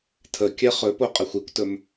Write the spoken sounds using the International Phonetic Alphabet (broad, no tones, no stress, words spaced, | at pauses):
tʰə kʲɛχɵpo qʼɛxʷikʷtɵm